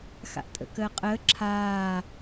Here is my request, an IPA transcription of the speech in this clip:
x a̰ ʔ tʼ ə̰ k əː qʼ əː ǁʰ aː

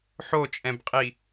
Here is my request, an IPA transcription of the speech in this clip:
ħ o t͡ʃʼ ɛ̃ b qʼ i

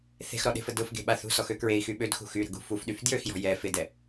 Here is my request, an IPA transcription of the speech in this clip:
θ e̤ x ɾ ɔ ɗ e̤ f ə d ʊ f ɡ e̤ ɓ a θ ṳ s ɔ x ø k ɹ e i̯ x y ɓ ø d x ṳ x y ɾ ə̤ ɡ ṳ f u f ɗ y f d j ø x j ɔ̤ j ɛ f ɪ d ɛ

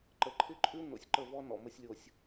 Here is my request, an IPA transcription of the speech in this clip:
ǃ ə˨ ǃʰ ɪ˦ ǃʼ ʉ˦ n o̰˨ sʲ ǃ ə˦˨ v ɔ˦ n ɔ̰˨ m ə˦ sʲ lʲ o˨ sʲ

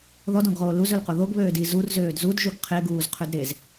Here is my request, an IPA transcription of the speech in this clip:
ð ɔ d ɔ̃ ɡ ʁ oː l u z ɵ l q o ð o ɡ β øː d i z u r z øː d z u d ʒ u ɡ qʰ e ɡ uː z qʰ ø d ɾ e z

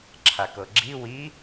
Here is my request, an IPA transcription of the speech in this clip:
ǁʰ a k ɤ ɡ͡ǁ i w i

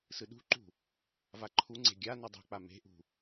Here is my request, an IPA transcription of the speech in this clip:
s ɯ ɗ ṳ ǃ ṳ | v a ǃʰ u ŋ͡ǀ e̤ ɡʲ a n ʌ dˤ ṳ k͡p a m e̤ ʔ ṳ

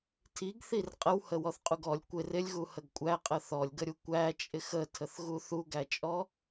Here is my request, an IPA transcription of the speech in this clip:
tʰ i ɡ θ i r qʼ ə w h ə w ɔ θ qʼ u ɡ ɔ lʲ kʷ ɪ r ɪ lʲ ɣ u h ə ɡ kʷʼ æ qʼ ə θ ɔ lʲ ɡ ə ɾʲ u kʷ æ t͡ʃʼ ɪ x ə tʰ ə θ ɣ u θ u ɡ æ t͡ʃʼ ɔ

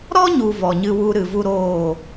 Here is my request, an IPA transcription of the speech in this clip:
ɾ ɔ˦ ɲ u˨ v ɔ˨ ɲ ɨ˧ w u˧ ɾ ɨ˨ v u˦ ɾ oː˦˨

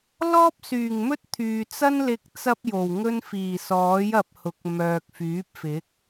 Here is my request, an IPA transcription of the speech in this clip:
l ɔː˥ p̚ s yː˨˩ ŋ m ɵ˥ t̚ t̪ʰ yː˨ t͡s ɐ˥ n l ɪ˧ k̚ t͡s ɐ˥ p̚ j o˨˩ w ŋ ɵ˥ n f iː˨˩ s ɔː˨˥ j ɐ˧ p̚ h ʊ˨˥ k̚ m œː˨ k̚ f yː˨˥ p̚ f ɪ˨˥ k̚

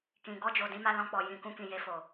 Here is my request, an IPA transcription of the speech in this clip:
k ĩ˨ ɡ ɔ˧ d͡ʒ o˨ d ĩ˨˦ m a˧ l ɔ̃˧ k͡p ɔ˨ j ĩ˨ k ũ˧ k ĩ˨ j e˧ f o˨

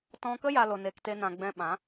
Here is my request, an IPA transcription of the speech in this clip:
t ɔ̃˧ k ə˦ j a˦ l o˧ n e˧ k t e˦ n ã˧ ɡ͡b ɛ̃˧ ɓ ã˨˦

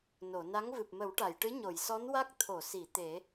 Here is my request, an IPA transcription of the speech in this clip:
n o˨˩˨ n a˧˥ ŋ v ɨ˨˩ p̚ m ə˨˩˦ w ʈ a˨˩˨ j ʈ ɨ˧˥ ɲ o˨˩˨ j s ɔ˧˥ n w a˦˥ k̚ t̪ʰ o˨˩˨ s i˨˩˨ t̪ e˨˩˦

